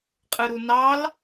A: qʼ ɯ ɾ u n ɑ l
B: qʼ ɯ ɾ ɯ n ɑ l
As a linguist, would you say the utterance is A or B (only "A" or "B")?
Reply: A